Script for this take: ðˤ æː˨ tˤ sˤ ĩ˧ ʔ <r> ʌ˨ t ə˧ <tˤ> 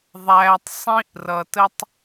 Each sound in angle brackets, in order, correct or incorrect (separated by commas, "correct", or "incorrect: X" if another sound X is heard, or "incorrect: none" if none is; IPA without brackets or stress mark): correct, correct